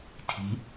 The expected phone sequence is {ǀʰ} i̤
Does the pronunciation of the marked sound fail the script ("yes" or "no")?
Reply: yes